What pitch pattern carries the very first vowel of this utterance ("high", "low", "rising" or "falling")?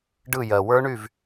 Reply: falling